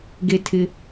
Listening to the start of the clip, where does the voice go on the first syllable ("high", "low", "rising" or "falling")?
high